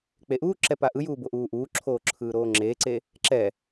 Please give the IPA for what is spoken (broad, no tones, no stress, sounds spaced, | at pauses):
k͡p e ʔ uː ǁ ɛ p a ʔ ɯ j uː b o ʔ uː ʔ uː ǁʰ oː ǁʰ ɯː ɾ oː ŋ͡ǁ eː ǀ e | ǁ ɛ